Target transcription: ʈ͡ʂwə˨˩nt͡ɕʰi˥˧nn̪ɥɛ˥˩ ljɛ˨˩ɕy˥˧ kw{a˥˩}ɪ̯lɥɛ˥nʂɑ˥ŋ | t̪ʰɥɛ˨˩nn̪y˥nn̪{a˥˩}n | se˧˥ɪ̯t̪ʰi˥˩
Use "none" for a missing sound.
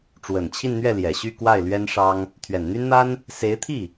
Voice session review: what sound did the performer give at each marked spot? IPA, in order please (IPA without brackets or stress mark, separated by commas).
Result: a˥˩, a˥